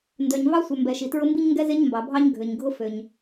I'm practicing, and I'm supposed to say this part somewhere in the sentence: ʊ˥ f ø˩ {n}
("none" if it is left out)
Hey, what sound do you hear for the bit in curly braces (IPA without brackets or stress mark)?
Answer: ɲ